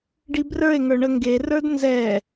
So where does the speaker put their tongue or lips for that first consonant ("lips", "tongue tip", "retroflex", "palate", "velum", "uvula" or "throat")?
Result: retroflex